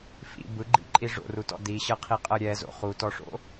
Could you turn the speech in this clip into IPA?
f ḭ b ɯ ɡ͡ǃ ḭ ǃʼ i ʐ o̰ r u t ɔ̰ d i ɕ ɤ qʰ i qʼ ɤ ɾʲ ɛ z o̰ χ u t ɔ ʂ o̰

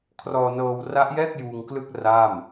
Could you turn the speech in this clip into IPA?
kʰ r ɔː˧ n ɤː˧ w r a˦˥ ʔ j ɛː˥˩ k̚ j uː˧ ŋ k l ɯ˥˩ k̚ r a˥˩ m

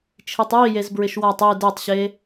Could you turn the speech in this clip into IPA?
t͡ʃʰ i tˤ j i j e z b ɹ ɪ ʃ w a tˤ i d e tˤ ɕ e

